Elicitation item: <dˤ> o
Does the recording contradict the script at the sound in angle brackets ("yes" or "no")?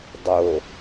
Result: no